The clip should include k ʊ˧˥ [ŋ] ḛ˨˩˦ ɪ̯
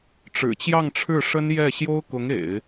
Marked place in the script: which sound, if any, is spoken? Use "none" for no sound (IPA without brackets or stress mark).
ŋ